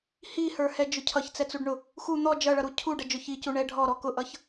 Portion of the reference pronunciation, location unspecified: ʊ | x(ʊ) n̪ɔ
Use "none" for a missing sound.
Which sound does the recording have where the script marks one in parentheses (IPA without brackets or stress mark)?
u